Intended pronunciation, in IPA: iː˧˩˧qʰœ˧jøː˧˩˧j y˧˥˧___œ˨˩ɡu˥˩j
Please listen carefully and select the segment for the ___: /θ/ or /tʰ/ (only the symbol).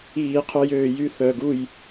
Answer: θ